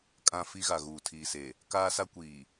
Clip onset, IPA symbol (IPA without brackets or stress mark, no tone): kʼ